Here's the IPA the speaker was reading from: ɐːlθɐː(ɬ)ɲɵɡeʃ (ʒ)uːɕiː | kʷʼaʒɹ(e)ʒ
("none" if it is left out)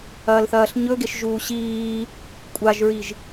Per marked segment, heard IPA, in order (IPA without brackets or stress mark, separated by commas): ɬ, ʒ, i